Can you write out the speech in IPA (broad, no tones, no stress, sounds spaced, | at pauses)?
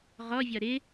ʁ ɔ vʲ ɒ ɾ ɪ